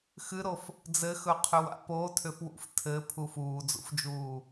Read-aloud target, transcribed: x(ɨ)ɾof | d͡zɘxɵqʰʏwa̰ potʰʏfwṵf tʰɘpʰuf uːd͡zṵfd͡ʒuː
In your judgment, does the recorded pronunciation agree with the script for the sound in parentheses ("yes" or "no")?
yes